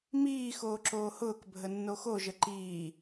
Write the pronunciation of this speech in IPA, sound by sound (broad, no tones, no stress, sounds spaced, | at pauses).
m iː x oː ǁ oː h ʊː k bʱ ə nː o x o ʒ ə ǃ iː